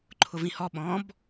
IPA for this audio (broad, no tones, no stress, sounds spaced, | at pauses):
ǃʰ ʊ v ĩ h ɔ ɓ ɔ̃ b